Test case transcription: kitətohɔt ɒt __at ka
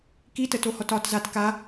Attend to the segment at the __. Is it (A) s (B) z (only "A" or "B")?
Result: B